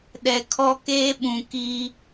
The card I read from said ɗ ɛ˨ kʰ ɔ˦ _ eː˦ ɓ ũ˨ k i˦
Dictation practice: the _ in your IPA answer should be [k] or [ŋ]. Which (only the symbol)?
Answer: k